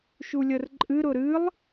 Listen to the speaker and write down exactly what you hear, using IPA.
ʃ u lʲ ə r ǃʼ ɨ ɾ ʊ ɾ ɨ lˠ

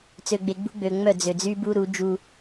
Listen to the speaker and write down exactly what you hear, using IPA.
t͡s ø˨ ɡ͡b e˨ ɡ͡b ṳ˦ ɡ͡b ø˨ ŋ͡m œ˦˨ d͡z ø˨ d͡z y˦ b u˦ ɾ u˨˦ d͡ʒ u˦

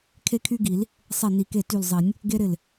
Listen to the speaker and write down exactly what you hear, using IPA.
kʰ e˦ kʰ y˦ ɡ i˨˩˦ l | sˤ e˧˩ n i˨˩˦ k e˧˩ t y˧˩ l zˤ i˨˩˦ nʲ | ɡ e˦ ɾ ɪ˧˩ l

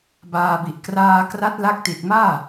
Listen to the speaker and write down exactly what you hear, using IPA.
b aː˧ b i˨˩ ʔ k r aː˧ k r a˦˥ t̚ l a˦˥ k̚ t i˨˩ t̚ m aː˥˩

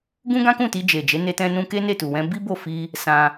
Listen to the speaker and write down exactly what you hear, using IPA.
ɡ ũ˦ ɡ ã˦ k ũ˦˨ t i˧ d͡ʒ e˨ d͡ʒ e˨˦ n e˧ t ɛ̃˧ n ũ˧ k e˦ n e˦˨ t u˨ w ɛ̃˧ b i˦ b o˦˨ f i˧ | s ã˧

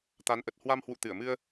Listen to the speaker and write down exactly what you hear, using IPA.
t̪ a˨˦ n ʔ ə˨˩ t̚ h w a˧ m h w ṵ˧˨ t̪ ɨ˧˩ ə̯ m ɨ˧ ə̯

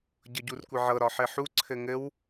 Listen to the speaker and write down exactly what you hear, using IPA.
ɟ ɤ ɟ u r kʷ ɘ ʕ ɤ ɾ ɒ ħ ɘ ħ u ǀʰ ɘ ŋ ɘ w

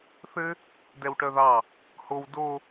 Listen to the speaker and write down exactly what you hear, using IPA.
θ ɘ | d ɛ w ʈ œ ð ɑ | h o w d o

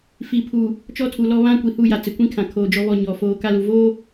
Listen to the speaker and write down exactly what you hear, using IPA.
f i˨ pʰ uː˨ | t͡ʃ ɔ˦ tʰ u˨ l ɔ˦ β ã˦ kʷ i˨ h u˦˨ j a˨ t͡s ɪ˨ kʷ ĩ˦ kʰ ã˨ kʰ oː˨ d͡ʒ ɔ˦ β ɔ˦˨ ɲ ɔ˨ f oː˦ k a˦ l u˨ v oː˦

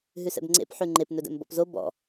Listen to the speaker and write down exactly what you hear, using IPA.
ɦ ʉ s ɛ̰ b ŋ͡ǀ ḛ p ħ ʉ ŋ͡ǃ e p n ɵ d ɛ̰ m b ɔ̰ p z o b ɔ̰

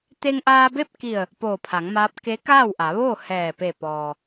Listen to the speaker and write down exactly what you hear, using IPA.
t̪ e˧ ŋ ʔ aː˧ b e˥˨ p̚ k i˧˩ ə̯ | p oː˧˩ pʰ a˩˧ ŋ m aː˧˥ p̚ k e˧˥ k aː˥˨ w ʔ a˩˧ ʋ oː˥˨ h ɛː˧˩ p e˧˩ p ɔː˩

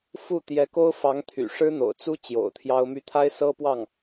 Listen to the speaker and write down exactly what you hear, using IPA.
f u˥˩ t̪ j ɛ˧˥ k o˥ ʊ̯ f ɑ˧˥ ŋ t̪ʰ y̰˨˩ ʂ ɻ̩˥ n̪ o̰˨˩ ʊ̯ t͡s u˥ t͡ɕ j o̰˨˩ ʊ̯ t̪ʰ j ɑ˥ ʊ̯ m y˥ t̪ʰ a˥ ɪ̯ s ɤ˥ p w ɑ˥˩ ŋ

